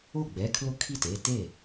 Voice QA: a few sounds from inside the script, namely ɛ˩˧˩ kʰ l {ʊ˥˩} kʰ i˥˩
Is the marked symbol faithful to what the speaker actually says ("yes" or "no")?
yes